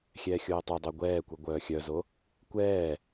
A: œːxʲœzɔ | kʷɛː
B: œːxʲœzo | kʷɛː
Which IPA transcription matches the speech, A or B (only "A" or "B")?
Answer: B